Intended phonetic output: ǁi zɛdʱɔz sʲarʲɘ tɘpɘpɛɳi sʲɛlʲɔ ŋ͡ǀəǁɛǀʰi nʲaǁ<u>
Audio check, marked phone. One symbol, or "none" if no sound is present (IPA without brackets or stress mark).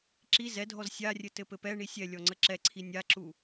u